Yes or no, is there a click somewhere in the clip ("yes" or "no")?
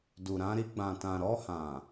no